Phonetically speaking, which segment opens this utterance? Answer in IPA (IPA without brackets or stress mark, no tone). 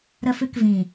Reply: ɾ